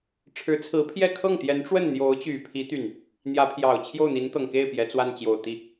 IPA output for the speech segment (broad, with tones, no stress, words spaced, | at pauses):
ʈ͡ʂʰɻ̩˧˥t͡sʰɹ̩˧˥pʰjɛ˥˧ kʰɤ˥˩ŋt̪jɛ˧˥nʈ͡ʂwə˥˩n n̪jo˧˥ʊ̯t͡ɕy˨˩pʰi˧˥ t̪y˥˩n | n̪jä˧˥pʰjɑ˨˩ʊ̯ t͡ɕʰjo˥˩ʊ̯n̪i˧˥nt̪ɤ˨˩ŋke˥˩ɪ̯ pjɛ˧˥t͡swa˥˩n t͡ɕjo˨˩ʊ̯t̪i˥˩